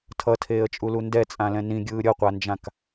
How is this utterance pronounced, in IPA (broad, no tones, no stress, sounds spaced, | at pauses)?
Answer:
tʰ ʌ tʰ eː ə̯ t͡ʃʼ u l u n d ɛ t͡sʼ ã l ɛ̃ n ĩ ɡʲ ɯː ɾʲ ʌ qʷ a n d͡ʒ ã k